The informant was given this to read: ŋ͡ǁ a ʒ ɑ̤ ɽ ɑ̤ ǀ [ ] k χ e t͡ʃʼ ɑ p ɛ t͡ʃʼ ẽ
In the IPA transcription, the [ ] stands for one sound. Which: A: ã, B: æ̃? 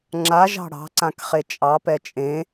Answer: A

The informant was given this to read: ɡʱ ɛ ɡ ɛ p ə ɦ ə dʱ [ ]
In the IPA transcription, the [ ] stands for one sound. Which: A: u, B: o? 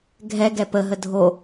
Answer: B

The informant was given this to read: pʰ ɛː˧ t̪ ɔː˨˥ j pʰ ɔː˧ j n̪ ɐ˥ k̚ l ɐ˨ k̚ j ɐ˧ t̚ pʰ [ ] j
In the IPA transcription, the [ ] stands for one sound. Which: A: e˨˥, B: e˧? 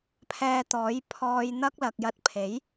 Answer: A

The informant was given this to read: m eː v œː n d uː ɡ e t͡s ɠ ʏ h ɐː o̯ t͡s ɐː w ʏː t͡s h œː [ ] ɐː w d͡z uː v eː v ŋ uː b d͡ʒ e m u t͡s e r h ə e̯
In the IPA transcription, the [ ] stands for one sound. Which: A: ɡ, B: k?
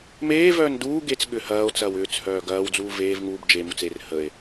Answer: A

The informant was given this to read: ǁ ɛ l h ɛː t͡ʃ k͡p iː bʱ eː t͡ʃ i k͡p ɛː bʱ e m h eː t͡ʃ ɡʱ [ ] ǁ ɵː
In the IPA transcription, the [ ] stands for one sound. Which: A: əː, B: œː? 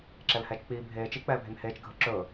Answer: A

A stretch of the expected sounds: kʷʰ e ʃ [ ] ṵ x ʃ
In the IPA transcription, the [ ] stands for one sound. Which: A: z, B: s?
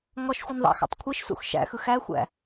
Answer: B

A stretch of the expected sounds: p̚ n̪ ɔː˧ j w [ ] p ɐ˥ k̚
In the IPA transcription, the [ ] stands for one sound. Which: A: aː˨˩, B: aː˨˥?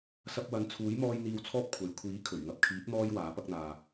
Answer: B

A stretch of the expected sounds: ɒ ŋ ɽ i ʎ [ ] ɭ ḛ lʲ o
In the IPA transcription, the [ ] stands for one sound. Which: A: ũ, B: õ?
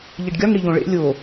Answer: B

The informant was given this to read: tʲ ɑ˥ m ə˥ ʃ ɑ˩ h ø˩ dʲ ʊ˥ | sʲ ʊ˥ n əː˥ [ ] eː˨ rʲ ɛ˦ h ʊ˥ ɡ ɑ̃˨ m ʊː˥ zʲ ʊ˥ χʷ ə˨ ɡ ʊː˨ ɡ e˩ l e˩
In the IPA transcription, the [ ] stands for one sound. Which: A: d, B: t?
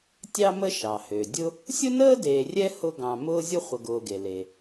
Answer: A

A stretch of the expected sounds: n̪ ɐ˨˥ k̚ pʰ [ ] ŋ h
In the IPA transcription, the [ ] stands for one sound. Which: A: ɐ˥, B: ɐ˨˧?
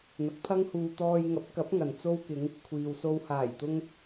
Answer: A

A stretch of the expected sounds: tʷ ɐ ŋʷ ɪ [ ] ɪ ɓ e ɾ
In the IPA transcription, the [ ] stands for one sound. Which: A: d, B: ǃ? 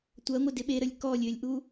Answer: A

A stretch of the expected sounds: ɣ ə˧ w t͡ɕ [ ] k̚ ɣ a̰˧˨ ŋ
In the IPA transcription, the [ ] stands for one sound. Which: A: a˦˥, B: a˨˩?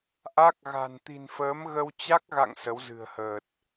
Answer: A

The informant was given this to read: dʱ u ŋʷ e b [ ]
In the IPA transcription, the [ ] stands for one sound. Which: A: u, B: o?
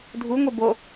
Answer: B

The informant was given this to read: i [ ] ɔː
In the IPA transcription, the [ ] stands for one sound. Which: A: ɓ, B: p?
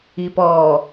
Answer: B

